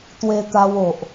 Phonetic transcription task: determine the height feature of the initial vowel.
mid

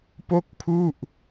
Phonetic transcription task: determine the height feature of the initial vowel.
mid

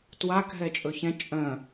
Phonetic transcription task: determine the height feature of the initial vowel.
low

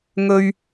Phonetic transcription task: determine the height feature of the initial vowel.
mid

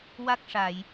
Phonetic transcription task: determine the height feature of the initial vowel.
low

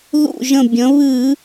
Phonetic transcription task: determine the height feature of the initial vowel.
high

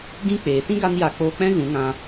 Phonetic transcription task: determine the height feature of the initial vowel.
high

